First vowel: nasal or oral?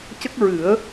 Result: oral